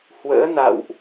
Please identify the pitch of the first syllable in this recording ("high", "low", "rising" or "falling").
rising